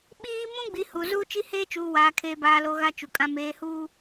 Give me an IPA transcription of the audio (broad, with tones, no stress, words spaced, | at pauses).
ɓiː˦ mũ˦ɡ͡bi˨ hu˨ zuː˦t͡ʃi˦heː˦ t͡ʃuː˨waː˨ kʰeː˨baː˨lo˨ ɣa˦t͡ʃu˨kʼã˦ meː˨huː˦